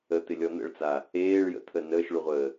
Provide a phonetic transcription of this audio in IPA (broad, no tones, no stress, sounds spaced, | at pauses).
ə t̪ ɪ lʲ ɔ n̪ ə̰ ɭ t͡s a | eː ɭ j ə̰ t̪ʰ ə n əː ʃ ɭ u ʁʷ əː